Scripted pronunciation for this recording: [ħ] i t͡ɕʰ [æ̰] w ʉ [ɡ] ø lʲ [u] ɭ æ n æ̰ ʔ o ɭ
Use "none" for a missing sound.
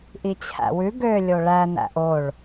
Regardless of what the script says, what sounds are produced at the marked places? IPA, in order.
ʔ, æ̰, ɡ, o

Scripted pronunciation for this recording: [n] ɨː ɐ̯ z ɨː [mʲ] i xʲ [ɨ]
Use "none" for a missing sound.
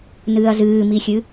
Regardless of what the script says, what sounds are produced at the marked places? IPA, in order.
n, m, ɨ

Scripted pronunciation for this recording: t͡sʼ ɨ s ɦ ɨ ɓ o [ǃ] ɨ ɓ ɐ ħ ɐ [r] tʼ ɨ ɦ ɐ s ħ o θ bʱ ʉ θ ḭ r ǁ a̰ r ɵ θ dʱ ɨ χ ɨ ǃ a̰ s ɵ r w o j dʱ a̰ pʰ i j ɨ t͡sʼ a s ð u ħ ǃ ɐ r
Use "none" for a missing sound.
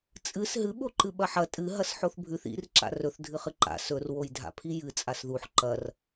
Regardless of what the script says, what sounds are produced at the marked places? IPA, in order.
ǃ, none

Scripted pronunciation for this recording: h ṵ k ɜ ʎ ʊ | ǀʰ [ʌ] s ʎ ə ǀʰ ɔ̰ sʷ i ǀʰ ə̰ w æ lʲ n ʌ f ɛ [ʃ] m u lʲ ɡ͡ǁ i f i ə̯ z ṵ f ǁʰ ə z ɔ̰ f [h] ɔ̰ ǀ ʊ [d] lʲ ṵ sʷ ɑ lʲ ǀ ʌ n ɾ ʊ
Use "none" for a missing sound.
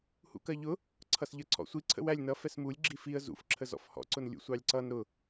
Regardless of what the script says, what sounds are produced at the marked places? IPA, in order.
ʌ, s, h, n

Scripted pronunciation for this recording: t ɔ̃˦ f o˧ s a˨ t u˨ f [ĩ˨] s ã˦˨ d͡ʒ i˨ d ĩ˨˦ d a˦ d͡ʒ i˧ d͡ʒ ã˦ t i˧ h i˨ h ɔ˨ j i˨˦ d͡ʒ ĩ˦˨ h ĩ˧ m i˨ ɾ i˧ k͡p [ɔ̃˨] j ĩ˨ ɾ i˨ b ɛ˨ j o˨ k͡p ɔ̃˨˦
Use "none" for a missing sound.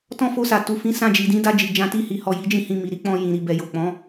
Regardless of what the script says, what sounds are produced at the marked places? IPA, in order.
ĩ˨˦, ɔ̃˧

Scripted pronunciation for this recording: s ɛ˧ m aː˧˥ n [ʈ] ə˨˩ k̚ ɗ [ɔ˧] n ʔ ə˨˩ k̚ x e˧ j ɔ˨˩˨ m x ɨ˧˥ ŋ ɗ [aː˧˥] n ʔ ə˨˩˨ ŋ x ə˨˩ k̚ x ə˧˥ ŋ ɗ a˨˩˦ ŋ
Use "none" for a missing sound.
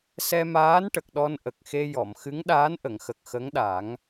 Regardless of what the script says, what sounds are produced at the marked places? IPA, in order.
ʈ, ɔ˧, aː˧˥

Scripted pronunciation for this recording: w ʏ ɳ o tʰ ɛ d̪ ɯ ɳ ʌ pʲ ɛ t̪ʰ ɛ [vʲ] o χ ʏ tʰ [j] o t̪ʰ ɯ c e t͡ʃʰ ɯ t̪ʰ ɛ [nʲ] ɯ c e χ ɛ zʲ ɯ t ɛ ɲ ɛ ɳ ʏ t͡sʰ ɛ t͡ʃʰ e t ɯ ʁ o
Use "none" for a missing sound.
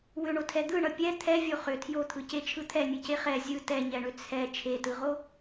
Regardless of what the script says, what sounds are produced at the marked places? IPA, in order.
vʲ, j, nʲ

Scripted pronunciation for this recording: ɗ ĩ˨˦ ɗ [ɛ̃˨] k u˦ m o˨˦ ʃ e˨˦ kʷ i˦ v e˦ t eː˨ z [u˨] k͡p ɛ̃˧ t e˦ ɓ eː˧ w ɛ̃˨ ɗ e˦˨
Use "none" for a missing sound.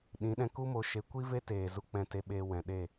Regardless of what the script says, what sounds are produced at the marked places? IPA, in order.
ɛ̃˧, u˦

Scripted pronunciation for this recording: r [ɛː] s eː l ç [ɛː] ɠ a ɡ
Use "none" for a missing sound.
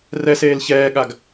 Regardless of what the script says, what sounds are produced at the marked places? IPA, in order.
ɛ, ɛː

